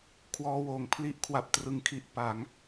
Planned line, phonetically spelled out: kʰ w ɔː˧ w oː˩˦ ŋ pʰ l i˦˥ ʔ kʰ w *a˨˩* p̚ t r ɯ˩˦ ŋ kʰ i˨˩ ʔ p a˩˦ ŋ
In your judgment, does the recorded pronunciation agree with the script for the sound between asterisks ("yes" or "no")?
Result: yes